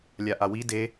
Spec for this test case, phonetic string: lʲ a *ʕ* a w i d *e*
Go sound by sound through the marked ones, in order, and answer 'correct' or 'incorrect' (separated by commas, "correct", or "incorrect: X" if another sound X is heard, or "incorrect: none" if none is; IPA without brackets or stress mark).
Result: incorrect: ʔ, correct